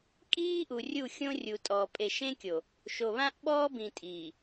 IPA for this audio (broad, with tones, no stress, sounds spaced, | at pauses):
kʼ iː˦ ʔ u˨ rʲ u˦˨ xʲ õ˦ rʲ u˨ tʼ ɔː˨ pʼ e˨ ʃ ẽ˦ kʲ o˨ | ʃ o˨ β ã˦ ʔ ɓ ɔː˦ b ĩ˨ tʼ iː˨